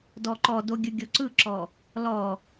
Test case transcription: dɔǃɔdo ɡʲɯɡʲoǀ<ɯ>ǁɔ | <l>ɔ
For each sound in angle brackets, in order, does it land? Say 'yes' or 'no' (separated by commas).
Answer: yes, yes